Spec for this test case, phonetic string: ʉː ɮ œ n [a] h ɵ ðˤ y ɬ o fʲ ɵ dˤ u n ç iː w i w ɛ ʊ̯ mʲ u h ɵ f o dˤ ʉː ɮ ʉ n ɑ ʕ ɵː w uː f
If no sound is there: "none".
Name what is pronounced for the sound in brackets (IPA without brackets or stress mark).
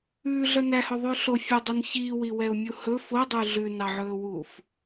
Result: æ